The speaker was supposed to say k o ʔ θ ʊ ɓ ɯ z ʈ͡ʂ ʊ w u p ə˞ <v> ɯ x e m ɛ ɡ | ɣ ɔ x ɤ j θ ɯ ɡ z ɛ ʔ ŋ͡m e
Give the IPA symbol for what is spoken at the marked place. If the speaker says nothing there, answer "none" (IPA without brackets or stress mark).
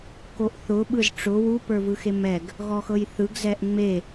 v